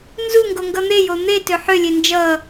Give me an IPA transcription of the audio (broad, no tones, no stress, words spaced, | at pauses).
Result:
nzuŋɡoŋɡʌ n̪ejo n̪etø ħølʲe nd͡ʒʌ